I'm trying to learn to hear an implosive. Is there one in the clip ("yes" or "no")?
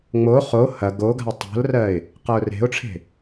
no